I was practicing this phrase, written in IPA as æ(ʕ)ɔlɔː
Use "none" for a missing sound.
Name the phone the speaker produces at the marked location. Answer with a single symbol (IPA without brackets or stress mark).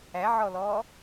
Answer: ʕ